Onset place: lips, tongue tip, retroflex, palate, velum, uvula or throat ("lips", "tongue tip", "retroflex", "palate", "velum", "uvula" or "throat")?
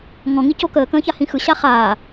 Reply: velum